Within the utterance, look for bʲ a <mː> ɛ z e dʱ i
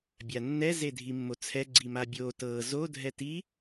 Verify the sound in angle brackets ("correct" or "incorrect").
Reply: incorrect